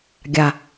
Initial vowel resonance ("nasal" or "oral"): oral